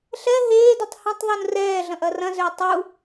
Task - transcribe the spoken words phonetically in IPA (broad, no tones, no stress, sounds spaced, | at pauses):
ɬ ɛ ɦ eː d u tˤ h ɐ̃ tˤ ðˤ u n r ɛː ɮ ɐ̃ ʔ ɐ r ɐ̃ z ʏː tˤ u